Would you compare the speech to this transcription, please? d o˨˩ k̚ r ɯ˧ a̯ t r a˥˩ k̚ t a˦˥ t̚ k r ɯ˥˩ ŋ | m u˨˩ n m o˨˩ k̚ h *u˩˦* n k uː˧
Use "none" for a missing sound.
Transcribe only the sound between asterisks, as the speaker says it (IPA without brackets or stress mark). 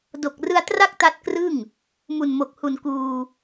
u˨˩